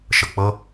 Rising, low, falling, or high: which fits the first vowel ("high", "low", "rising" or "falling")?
low